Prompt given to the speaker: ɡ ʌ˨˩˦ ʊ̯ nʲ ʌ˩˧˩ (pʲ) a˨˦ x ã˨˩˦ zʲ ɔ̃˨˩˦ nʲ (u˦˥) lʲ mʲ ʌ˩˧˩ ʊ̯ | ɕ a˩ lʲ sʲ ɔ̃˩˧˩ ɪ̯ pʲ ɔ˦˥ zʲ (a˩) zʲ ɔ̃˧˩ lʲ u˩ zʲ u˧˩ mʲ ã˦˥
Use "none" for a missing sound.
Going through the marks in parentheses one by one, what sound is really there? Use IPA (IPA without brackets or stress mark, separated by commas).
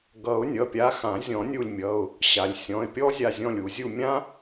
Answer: pʲ, u˧˩, a˧˩